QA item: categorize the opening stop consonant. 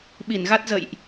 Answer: implosive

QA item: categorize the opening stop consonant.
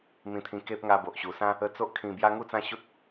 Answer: aspirated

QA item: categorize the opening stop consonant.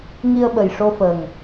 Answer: implosive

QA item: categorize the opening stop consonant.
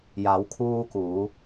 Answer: aspirated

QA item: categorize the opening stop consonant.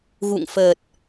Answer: plain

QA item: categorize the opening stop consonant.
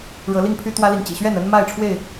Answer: aspirated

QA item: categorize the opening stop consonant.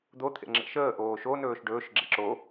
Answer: plain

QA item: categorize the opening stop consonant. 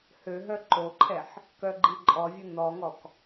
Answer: click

